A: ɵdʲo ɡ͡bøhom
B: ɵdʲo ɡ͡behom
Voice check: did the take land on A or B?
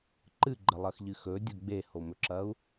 B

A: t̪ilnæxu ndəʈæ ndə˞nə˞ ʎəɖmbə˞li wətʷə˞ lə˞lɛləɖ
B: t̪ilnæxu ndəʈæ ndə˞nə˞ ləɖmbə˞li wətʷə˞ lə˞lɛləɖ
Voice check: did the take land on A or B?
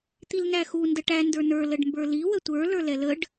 B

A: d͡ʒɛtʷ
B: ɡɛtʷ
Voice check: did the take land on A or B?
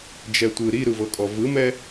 A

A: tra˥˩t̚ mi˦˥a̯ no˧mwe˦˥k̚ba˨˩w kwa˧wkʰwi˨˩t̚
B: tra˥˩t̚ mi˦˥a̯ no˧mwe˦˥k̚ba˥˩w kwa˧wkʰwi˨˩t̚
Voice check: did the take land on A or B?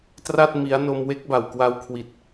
A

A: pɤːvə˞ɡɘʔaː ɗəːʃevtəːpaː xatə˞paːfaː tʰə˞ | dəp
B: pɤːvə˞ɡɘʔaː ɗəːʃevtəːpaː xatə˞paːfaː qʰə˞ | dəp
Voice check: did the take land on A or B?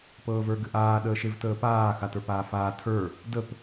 A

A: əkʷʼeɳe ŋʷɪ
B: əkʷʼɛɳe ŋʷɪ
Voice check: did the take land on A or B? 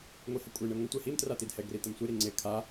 A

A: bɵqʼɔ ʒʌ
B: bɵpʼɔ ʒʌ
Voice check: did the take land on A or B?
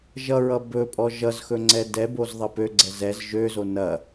B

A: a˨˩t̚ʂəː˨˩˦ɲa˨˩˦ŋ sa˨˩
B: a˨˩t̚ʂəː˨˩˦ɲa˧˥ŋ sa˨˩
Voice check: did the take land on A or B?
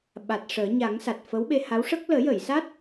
A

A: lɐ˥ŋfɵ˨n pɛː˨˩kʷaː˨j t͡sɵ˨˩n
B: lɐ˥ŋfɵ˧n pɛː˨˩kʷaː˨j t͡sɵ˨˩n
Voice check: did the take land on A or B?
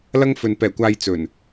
A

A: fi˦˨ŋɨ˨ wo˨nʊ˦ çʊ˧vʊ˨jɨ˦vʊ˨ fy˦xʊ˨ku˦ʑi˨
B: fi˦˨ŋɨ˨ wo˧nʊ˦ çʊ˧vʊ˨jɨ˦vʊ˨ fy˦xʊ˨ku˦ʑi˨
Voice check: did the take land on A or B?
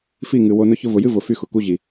B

